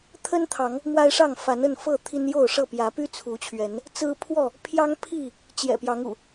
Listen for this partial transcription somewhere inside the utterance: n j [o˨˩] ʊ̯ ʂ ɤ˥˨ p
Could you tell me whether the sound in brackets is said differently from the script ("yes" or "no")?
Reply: yes